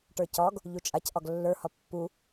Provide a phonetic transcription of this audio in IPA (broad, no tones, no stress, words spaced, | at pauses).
ʈə˞cɒɡ | ʎut͡ʃʼac ʔɒɡlːə˞ hɒpːu